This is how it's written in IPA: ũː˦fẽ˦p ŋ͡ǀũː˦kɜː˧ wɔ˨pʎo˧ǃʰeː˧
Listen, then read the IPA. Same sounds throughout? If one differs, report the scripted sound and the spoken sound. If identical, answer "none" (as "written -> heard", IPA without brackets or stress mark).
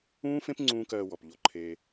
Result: none